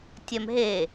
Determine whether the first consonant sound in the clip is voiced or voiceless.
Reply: voiceless